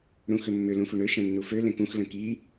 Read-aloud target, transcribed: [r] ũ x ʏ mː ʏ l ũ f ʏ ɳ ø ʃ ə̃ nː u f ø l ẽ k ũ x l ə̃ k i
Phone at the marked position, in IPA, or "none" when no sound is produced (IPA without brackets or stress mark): ɽ